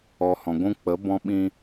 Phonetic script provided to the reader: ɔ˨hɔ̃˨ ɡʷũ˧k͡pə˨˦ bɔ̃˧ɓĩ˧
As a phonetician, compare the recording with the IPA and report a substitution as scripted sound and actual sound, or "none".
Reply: none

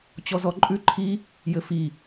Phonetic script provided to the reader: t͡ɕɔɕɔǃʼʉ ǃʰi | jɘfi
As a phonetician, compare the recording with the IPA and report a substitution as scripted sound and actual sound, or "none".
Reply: ɕ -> z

